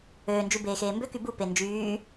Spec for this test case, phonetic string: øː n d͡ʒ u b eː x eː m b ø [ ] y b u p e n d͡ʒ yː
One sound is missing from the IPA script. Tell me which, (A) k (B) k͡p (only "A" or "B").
A